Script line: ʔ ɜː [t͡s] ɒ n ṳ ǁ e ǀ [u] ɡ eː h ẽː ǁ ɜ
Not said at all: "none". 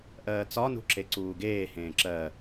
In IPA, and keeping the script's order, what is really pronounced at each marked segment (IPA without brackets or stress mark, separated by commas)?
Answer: t͡s, uː